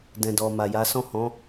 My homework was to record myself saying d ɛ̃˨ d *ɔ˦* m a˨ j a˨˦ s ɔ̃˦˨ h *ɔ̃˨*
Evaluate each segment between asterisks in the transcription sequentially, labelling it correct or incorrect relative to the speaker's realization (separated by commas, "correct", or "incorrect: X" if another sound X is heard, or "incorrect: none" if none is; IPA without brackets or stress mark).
incorrect: ɔ˨, incorrect: ɔ̃˨˦